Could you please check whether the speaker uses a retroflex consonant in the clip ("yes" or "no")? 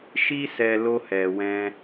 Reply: no